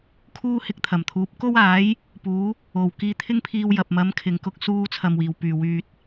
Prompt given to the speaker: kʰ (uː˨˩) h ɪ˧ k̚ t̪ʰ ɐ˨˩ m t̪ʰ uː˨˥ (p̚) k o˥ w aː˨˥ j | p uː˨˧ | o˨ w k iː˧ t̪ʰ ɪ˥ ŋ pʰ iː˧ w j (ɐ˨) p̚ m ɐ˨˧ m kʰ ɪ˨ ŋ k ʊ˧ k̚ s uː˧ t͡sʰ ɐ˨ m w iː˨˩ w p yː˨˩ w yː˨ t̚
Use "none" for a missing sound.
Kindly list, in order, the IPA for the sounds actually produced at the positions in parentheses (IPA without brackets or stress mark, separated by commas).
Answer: uː˥, p̚, ɐ˨